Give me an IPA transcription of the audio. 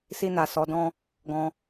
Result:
si˧na˨ sɔ˨˦dɔ̃˦ | ɡɔ̃˧

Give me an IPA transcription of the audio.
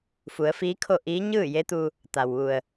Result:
fu˩˧ə̯fiː˧˥kʰo˥˨ ʔiː˧˥ ɲɯː˥˨je˧˥t̪u˧ | t̪a˩wʋu˩ə̯

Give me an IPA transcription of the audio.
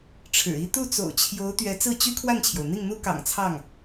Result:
ʈ͡ʂʰɻ̩˨˩i˥ t̪u˥˩t͡so̰˨˩ʊ̯t͡ɕʰjo˧˥ʊ̯ t̪ɥɛ˧˥t͡sɹ̩˥˩t͡ɕy˥ kʰwa˥˩nt͡ɕʰjo˩ʊ̯n̪i˥˩ŋn̪u˥ kɑ̰˨˩ŋt͡sʰɑ˥˩ŋ

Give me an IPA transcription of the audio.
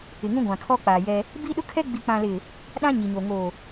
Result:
ɪ˨ŋũ˦ɡʷã˨kʰɔ˦ k͡paː˨jɛ˦ | biː˦ɗʊ˦kʰɛ˦ ɡ͡bi˨k͡pã˨lɪ˨ | ɗã˦ɲi˨ɲoː˨ ŋoː˨

